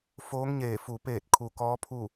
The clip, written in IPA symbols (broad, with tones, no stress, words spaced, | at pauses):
foː˧˥ŋɲeː˧˩ fu˩peː˧˩t̚ kʰu˩kɔː˧˥pʰu˥˨